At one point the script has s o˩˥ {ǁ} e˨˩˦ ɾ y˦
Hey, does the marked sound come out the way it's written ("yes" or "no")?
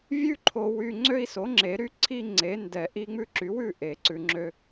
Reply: no